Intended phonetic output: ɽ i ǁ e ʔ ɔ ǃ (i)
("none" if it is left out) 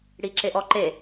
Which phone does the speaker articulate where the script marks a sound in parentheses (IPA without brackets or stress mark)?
e